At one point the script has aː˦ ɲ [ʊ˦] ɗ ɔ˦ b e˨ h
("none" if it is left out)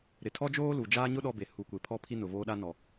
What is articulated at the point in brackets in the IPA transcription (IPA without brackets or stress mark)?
ʊ˦